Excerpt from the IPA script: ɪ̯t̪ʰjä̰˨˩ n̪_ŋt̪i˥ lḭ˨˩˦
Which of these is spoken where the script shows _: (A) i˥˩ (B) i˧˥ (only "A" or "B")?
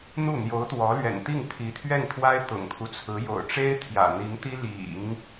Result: B